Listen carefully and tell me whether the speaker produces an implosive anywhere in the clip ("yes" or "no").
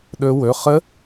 yes